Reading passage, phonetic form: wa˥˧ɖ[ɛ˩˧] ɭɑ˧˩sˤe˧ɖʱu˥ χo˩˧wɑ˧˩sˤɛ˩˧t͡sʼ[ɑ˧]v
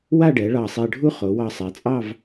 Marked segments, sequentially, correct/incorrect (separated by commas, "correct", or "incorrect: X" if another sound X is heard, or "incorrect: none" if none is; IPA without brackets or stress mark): correct, incorrect: ɑ˥˧